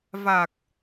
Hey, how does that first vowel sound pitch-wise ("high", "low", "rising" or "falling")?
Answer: low